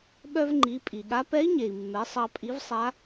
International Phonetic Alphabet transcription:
ɓœ˧vŋ͡ǃi˩˧ pʼi˩ɠa˧˥ pɛ˧˥i̯ɲe˩i̯mːɛ˩˧ sˤɑ˧pʼi˧˥vsˤa˧˥

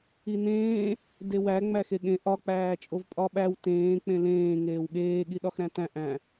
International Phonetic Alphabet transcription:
inẽː | dewæ ŋ͡mæxeɠẽ ʔɒ k͡pæːt͡ʃʼovpʼɒɓæw tẽː k͡pẽlẽː ŋeːwɠeː ɠiɗɒxɾæ̃tæ̃ ʔæ̃

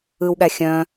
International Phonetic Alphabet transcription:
ɯwɠæ xʲœ̃

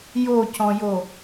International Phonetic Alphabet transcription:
jocɔ̃jo

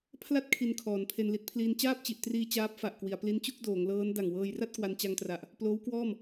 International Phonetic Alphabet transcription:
pʰla˥˩t̚ kʰi˧nkʰɔː˩˦n pʰe˧nli˦˥t̚pʰliː˧n t͡ɕaː˥˩p̚t͡ɕi˨˩ʔtriː˧ t͡ɕaː˦˥p̚fa˨˩ʔkwi˩˦a̯ pli˦˥nt͡ɕu˥˩k̚doː˩˦ŋlɤː˦˥n da˨˩ŋwɤː˧jra˥˩t̚ kwa˧nt͡ɕa˧ŋtra˨˩ʔ | ploː˦˥wkwɔː˥˩m

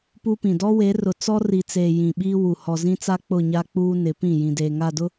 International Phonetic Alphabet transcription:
pu˦pĩ˨ dɔ˦we˨˦rʊ˨ t͡sɔ˦ri˨t͡seː˨ jĩ˨ɓiː˦ wu˨ hɔ˨zĩ˦t͡sa˦ k͡pʊ˦˨ɲa˦k͡puː˦ nɪ˨˦pĩ˦˨ jĩ˨deː˨ŋa˦˨dʊ˦

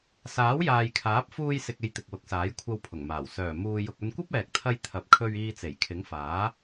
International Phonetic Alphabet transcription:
saː˨˥wjaː˨jkʰaː˨˥p̚ fuː˧jsɪ˨k̚ e˧jt̪ɪ˨k̚wʊ˨˥k̚saː˨˥j kʷʰɐ˧wpʰʊ˨˩ŋmaː˨˩w sœː˨˩ muː˨jʊ˨k̚ ɵ˧nkʷɐ˥p̚ɛː˨k̚t̪ʰɐ˧j t̪ʰɐ˨p̚kʰɵ˧ɥiː˧ t͡se˨˩jkʰɪ˨˥ŋfaː˨˥

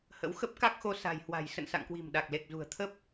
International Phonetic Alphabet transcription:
hə̰˧˥wxə˦˥p̚ ka˦˥k̚xo˧ sa̤˨˩jhwa̤˨˩j sə̰˧˨nsa̰˧˨ŋkwi̤˨˩m ɗa˨˩k̚le˨˩k̚ zṳ˨˩ə̯t̪ʰə˦˥p̚

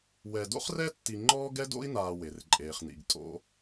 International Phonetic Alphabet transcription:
wɛ˨do̰˥χrɛ˥tːi˨ ŋ͡ǃɔː˥ɡɛ˥do̰˥i̯naː˨ we˩rǃʼeː˩χnḭ˩ɡ tʼo̰˨

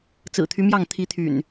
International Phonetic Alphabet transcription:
t͡sɹ̩˨˩t̪ʰy˦mjɑ˥˨ŋ t̪ʰi˨˦t̪ʰy̰˨˩n

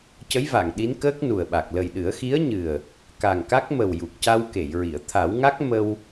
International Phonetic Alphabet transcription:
cə˧˥jva˨˩˨ŋ ɗi˧˥n kəː˦˥k̚nu˨˩ə̯ɓa˨˩k̚ lə˨˩jɗɨ˨˩˦ə̯xi˧˥ə̯ɲɨ˨˩ə̯ | ka˨˩ŋka˦˥k̚mə˨˩w ju˨˩k̚ca˧wke˨˩˨jɹi˨˩˨ə̯ t̪ʰa˨˩˦wŋa˦˥k̚ mə˧w

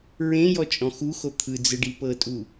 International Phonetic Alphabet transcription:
ɹẽ jɔt͡ʃʼɔ̃xuxo t̪ʰɯd͡zɯɖ ipɤtʼu

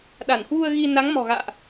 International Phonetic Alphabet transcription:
ɗa˧˩nhwu˧ə̯ɣi˧ na˨˦ŋmɔ̤˨˩ ɣa̰ː˧˨ʔ

